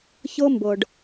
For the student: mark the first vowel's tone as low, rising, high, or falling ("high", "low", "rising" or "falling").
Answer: high